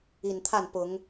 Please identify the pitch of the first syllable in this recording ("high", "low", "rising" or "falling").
low